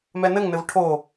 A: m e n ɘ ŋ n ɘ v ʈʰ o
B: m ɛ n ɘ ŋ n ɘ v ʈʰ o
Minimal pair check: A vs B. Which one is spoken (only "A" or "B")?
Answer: B